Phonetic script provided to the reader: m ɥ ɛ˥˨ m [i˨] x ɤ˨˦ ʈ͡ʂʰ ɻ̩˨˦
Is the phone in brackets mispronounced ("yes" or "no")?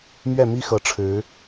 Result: yes